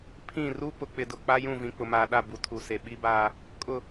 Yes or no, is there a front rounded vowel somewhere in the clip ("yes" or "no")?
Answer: no